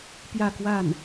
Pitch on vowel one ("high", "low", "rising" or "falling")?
falling